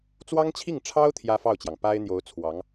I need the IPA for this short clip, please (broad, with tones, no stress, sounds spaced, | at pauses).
t͡s w ɑ˥ ŋ t͡ɕʰ i˥˩ ŋ ʈ͡ʂʰ ɑ˥ ʊ̯ t̪ʰ j ä˥ f ɑ˥˩ ʊ̯ t͡ɕ j ɑ˩ ŋ p a˥ ɪ̯ n̪ j o˧˥ ʊ̯ t͡sʰ w ɑ˧˥ ŋ